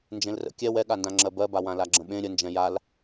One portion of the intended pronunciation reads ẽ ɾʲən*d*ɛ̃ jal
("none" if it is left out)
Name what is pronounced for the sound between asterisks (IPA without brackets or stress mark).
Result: d͡ʒ